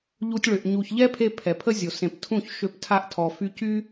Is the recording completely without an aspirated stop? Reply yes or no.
no